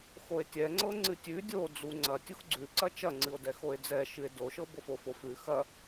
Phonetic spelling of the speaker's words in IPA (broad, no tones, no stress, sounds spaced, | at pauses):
x o e̯ tʲ ɛ ŋ͡ǀ ɤ ŋ͡ǀ ɨ tʲ ʉ dʲ o d͡z u ŋ͡ǀ ɐ tʲ u x ɡ͡ǀ ʉ ǀ ɐ t͡ʃ ɐ ŋ͡ǀ ɨ o̯ d ɛ x o e̯ d͡z ɛ ʃ ɨ e̯ d o ʃ ɤ b o f o f o f ʉ x ɐ